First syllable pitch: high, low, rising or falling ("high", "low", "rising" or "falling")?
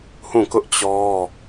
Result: falling